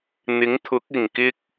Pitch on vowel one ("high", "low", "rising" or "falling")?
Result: rising